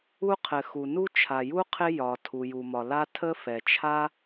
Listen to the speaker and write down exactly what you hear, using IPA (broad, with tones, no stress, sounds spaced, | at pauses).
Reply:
u˥ qʰ ɘ˩ x u˩ n u˥ t͡ʃʰ a˩ j u˥ qʰ ɪ˥ j ɒ˩ tʰ u˩ j u˩ m ɒ˩ l a˥ tʰ ə˥ f ɛ˩ t͡ʃʰ a˥